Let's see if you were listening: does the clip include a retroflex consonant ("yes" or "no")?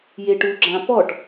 yes